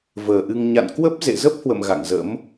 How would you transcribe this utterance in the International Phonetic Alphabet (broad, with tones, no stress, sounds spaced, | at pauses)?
v əː˨˩ ʔ ɨ˧ ŋ ɲ a̰˧˨ n k w ə˦˥ p̚ z ḛ˧˨ z ə˦˥ p̚ h w ə̰˧˨ m ɣ a̰˧˨ ŋ z ə̰˧˥ m